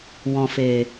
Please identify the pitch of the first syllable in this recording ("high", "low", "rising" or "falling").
low